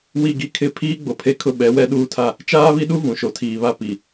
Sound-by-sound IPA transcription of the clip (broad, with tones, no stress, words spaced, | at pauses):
wi˦˨ɡi˦kʰɪ˦˨ pʰiː˦ ɡ͡bo˨pʰe˦kʰʊ˦ ɓɛ˨˦wɛ˦ɗuː˦tʰa˦ | t͡ʃaː˦βi˦ɗu˦ vũ˨ʃo˨tʰiː˨ βa˦pi˨